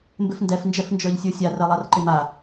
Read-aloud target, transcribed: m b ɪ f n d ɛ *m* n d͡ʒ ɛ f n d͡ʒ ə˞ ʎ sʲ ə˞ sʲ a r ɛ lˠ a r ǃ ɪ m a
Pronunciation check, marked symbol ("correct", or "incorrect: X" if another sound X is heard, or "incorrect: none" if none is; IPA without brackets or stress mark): incorrect: f